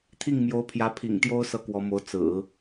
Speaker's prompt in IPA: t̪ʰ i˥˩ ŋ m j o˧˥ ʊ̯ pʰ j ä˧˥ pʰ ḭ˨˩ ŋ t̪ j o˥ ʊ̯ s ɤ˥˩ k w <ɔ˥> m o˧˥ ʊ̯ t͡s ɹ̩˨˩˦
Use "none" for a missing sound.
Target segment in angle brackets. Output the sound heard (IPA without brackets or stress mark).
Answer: ɔ˧˥